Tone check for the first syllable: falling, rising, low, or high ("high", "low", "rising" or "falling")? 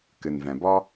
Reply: low